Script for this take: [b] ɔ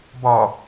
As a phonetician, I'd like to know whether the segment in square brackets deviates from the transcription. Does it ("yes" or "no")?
no